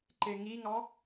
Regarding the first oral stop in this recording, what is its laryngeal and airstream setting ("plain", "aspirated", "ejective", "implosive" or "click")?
click